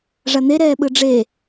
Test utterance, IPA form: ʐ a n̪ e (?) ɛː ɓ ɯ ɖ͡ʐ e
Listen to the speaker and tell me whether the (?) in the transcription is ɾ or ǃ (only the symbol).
ɾ